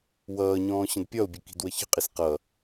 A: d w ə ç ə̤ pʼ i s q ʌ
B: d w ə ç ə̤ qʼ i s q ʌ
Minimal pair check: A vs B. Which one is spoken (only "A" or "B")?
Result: B